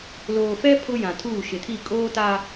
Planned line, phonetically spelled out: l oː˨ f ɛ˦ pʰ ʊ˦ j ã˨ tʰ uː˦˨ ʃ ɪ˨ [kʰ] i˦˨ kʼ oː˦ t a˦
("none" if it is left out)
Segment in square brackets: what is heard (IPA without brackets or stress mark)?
tʰ